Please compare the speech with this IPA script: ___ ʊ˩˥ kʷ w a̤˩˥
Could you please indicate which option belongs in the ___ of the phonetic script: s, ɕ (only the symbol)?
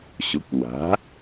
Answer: ɕ